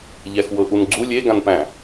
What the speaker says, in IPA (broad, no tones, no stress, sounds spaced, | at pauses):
ʎ æ x w ɤ ʔ u n ɡ͡ǀ u lʲ e ɡ ã n p æ̃